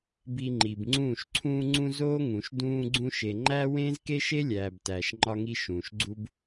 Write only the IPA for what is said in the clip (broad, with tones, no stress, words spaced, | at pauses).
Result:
bi˧ŋ͡ǃi˨bŋ͡ǀũː˦˨ʃ ǀʰũː˧ŋ͡ǀũ˧ zoː˦ŋũ˨ʃ dũː˧ɡ͡ǀũ˧ʃe˨ ŋ͡ǃæ˦ wẽː˦zke˦ʃe˦lʲæː˨b tæː˨ʃŋ͡ǃɒ˧ŋi˧ ʃũː˨ʃɡ͡ǀu˦b